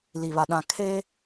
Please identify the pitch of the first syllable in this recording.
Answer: low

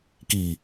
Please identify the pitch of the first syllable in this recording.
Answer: low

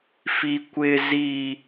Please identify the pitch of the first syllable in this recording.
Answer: high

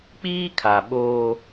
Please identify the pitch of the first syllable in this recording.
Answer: high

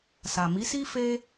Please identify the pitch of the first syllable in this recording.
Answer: low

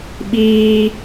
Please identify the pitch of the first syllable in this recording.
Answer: high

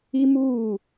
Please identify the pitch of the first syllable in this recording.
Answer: high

